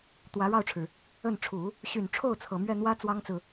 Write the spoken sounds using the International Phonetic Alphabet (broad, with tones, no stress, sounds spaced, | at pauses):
t̪ w ä˧˥ ɻ ɑ˥˩ ʊ̯ ʈ͡ʂʰ ɻ̩˩ | ə˥˩ n ʈ͡ʂʰ u˨˩˦ | ɕ y˨˩ n ʈ͡ʂʰ o˥˩ ʊ̯ t͡sʰ ɤ˨˩ m ɥ ɛ˥˩ n̪ w ä˥ t͡s w ɑ˥ ŋ t͡s ɹ̩˨